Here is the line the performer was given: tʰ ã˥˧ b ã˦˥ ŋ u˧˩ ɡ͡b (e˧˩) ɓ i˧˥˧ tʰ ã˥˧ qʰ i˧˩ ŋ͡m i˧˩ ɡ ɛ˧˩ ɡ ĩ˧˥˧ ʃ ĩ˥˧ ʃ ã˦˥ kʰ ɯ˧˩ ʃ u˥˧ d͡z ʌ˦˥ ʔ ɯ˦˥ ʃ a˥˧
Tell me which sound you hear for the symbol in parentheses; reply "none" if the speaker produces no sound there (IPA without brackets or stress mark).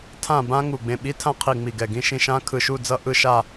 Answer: ẽ˧˩